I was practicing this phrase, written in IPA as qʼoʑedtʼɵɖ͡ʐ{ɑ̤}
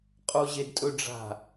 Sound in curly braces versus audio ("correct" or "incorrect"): incorrect